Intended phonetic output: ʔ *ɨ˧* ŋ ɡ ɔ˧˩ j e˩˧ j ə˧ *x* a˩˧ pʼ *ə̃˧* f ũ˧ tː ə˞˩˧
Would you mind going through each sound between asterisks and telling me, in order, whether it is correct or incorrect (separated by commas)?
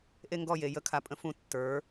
incorrect, incorrect, correct